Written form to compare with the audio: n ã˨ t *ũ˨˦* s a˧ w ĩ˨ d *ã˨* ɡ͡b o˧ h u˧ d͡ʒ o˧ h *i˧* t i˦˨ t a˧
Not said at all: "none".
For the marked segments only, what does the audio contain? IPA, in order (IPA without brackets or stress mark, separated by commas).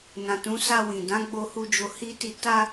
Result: ũ˨˦, ã˨˦, i˦